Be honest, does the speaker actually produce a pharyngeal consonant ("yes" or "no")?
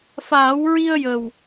no